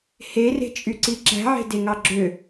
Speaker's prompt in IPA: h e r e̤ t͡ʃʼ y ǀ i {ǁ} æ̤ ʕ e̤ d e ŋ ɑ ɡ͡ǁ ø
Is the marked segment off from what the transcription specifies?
no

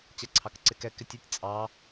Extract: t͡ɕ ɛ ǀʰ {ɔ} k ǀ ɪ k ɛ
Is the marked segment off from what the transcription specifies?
yes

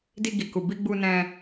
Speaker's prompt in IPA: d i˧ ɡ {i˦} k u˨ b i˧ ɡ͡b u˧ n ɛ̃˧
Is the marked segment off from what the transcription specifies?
yes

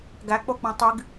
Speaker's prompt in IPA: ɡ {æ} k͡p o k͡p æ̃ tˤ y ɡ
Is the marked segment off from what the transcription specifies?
no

